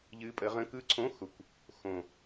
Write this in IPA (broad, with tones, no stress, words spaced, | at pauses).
ʎɨ˨˦ pʼə˨˦ʁə̃˧˥˧ kɯ˦˥ǀʰõ˧˥˧ xʊ˨˩kʷ | xõ˨˩